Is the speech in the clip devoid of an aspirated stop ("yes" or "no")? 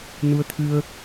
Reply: no